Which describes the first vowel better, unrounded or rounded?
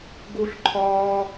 rounded